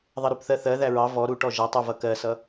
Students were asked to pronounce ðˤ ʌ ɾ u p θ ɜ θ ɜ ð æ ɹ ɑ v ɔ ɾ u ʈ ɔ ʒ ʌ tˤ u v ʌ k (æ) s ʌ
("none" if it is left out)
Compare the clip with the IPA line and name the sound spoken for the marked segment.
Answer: ɜ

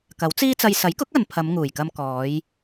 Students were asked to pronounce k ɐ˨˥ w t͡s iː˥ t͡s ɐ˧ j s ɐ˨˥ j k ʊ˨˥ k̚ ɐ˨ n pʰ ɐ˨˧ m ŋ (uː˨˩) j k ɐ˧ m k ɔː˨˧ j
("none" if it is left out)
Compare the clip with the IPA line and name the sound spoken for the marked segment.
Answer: uː˨˩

